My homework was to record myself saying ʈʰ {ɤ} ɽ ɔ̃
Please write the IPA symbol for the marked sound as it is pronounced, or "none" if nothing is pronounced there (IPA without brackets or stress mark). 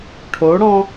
o